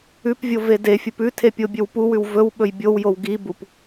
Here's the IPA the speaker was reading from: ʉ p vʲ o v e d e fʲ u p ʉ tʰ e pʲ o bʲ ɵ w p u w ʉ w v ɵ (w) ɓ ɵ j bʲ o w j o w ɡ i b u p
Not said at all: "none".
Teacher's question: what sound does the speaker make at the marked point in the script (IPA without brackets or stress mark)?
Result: w